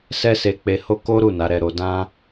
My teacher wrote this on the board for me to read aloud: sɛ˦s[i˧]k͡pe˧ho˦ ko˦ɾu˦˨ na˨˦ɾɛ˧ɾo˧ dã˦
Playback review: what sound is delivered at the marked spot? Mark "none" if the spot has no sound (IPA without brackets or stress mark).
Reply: e˧